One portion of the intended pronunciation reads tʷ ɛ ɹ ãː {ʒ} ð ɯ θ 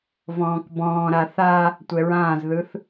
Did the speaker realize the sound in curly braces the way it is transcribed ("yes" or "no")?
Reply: no